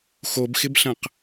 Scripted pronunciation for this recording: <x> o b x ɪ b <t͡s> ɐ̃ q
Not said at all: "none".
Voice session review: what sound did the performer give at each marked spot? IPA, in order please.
x, ɬ

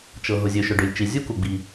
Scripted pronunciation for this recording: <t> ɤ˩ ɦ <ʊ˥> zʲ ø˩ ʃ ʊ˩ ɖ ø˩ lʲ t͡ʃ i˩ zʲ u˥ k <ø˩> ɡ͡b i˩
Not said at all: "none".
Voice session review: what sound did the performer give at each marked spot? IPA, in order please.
t͡ʃ, ʊ˩, u˩

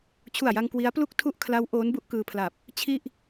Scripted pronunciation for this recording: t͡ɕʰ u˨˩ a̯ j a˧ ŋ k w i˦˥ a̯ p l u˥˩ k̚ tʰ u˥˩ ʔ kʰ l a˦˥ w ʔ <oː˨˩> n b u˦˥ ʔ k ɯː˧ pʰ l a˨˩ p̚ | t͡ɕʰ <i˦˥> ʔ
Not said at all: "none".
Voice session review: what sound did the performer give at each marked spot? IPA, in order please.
oː˦˥, i˥˩

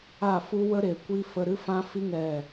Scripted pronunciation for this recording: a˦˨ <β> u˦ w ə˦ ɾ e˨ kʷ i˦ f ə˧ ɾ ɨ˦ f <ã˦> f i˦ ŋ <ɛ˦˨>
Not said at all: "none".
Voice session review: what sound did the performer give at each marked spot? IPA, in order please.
f, ã˦, ɛ˦˨

